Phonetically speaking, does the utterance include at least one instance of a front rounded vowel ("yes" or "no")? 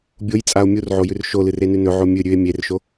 no